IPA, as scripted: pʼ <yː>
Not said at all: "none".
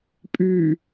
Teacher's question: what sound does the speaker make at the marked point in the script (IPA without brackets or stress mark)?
yː